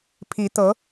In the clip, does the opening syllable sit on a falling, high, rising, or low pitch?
rising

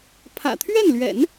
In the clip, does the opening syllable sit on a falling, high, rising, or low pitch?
low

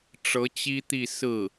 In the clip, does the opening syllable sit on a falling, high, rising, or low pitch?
rising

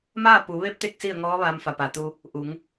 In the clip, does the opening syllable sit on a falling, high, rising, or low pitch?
falling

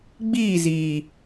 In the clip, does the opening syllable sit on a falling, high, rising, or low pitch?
falling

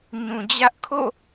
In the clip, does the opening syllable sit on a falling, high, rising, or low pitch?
low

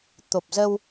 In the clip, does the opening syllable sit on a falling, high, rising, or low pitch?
low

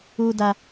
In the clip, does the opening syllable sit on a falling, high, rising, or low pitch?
high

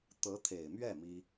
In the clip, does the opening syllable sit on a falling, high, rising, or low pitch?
rising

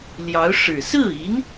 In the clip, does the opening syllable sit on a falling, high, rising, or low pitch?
rising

